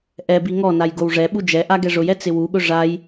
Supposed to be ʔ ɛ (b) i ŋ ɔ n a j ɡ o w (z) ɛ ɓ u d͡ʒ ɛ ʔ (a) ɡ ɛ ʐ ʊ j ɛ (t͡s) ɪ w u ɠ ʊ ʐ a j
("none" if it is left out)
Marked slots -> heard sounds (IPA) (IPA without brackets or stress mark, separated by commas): b, ʐ, a, t͡s